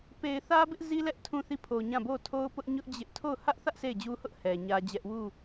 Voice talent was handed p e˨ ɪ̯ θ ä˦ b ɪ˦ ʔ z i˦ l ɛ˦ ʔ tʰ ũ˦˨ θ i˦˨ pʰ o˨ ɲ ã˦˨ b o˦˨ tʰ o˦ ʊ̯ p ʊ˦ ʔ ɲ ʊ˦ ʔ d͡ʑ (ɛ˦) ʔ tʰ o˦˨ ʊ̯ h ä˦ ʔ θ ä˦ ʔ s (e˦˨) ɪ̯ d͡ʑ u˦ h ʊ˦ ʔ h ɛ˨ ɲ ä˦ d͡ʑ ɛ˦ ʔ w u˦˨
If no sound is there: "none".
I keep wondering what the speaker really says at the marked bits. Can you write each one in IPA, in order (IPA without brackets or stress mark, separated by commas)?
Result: ɪ˦, e˦˨